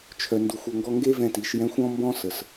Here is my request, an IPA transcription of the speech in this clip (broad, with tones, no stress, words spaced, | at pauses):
t͡ʃʰœ˧ndu˧xʷ o˧ŋɡɔ˥ ŋɡe˥vɛ̃˧ti˩˧ʃjɛ̃˧˥xʷ ɔ̃˥mbɔ̃˥sə˩s